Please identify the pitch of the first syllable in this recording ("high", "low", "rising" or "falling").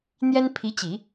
high